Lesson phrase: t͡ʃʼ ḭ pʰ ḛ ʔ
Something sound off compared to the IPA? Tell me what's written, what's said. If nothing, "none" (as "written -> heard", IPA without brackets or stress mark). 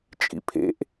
none